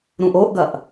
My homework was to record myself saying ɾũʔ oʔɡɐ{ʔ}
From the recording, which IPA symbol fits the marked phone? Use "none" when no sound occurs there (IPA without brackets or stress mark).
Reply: ʔ